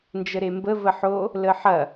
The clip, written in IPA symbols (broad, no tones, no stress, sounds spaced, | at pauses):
n d͡ʒ ə ɾ e m b ə v ə ħ o | l ə ħ ɐ